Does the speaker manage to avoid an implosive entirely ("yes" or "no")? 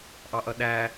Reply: no